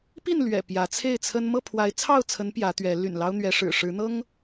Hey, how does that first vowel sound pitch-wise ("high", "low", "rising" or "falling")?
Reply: falling